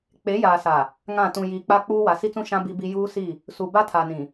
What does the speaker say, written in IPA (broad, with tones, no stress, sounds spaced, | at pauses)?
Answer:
k͡p e˨˦ j aː˨ s a˨ | ŋ ã˦˨ t ũ˨ j iː˨ k͡p a˦ k͡p uː˦ w a˨ s i˦ t͡s ũ˦ ʃ ã˦ b i˦ b i˦ j uː˦ s i˦˨ | s u˨ b a˦ tʰ a˨ n ĩ˨